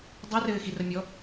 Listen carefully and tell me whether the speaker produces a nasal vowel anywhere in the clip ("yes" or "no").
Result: no